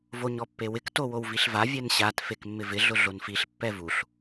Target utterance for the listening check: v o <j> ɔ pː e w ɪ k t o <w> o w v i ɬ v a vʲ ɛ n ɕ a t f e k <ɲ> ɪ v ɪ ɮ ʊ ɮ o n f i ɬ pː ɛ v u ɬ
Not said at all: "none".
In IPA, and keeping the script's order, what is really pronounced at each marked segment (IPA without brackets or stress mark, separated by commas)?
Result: ɲ, w, mː